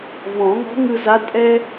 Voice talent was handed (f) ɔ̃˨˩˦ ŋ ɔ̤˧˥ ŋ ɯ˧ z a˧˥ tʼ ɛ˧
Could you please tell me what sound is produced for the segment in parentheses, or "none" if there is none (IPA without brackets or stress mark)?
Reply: v